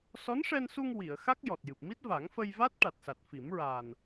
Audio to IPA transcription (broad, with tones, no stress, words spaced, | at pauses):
sɔ˧˥nʂɛ˧nsu˧ŋ wi˨˩˨ə̯xa˦˥k̚ jɔ˨˩t̚jɨ˨˩p̚ mi˦˥t̚va˨˩˦ŋfə˧jva˦˥t̚ ʈa˨˩t̚sa˨˩t̚fi˨˩˦mɹaː˨˩n